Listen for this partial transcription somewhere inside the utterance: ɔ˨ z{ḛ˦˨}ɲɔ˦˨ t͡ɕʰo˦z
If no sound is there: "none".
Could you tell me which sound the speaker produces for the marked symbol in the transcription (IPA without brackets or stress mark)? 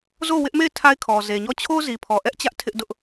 e˨